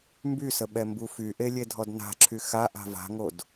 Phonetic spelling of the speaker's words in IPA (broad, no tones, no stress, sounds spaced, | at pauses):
m b y s ə ɓ ɛ m b u f y ʔ e lʲ e dʱ ɔ d n a̤ ǁʰ y x a ʔ a̤ v a̤ ŋ o d